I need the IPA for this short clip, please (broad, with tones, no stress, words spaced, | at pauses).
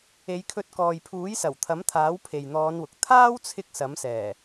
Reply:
e˨˧jkʰɵ˧t̚kɔː˨j pʰuː˨˥jsɐ˨˩wt̪ʰɐ˨˥mt̪ʰaː˨˥w pʰe˨jn̪ɔː˨˧nwʊ˨k̚ t̪ʰaː˥wt͡sʰɪ˧k̚ sɐ˨˥msɛː˨˩